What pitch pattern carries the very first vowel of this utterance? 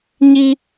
high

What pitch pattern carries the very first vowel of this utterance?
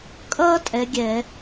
high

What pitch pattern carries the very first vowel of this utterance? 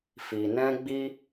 low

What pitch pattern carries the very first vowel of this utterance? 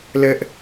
high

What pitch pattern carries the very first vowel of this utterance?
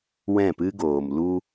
falling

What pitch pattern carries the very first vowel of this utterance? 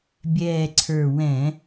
low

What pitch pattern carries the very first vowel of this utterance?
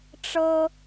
high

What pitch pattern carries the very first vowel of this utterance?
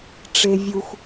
low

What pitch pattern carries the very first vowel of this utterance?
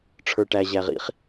low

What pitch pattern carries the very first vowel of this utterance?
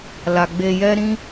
low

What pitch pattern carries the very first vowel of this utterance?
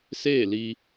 falling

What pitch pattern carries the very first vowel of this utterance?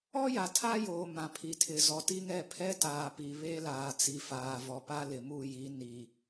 high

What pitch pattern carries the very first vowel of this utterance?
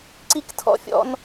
high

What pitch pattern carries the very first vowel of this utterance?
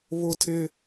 high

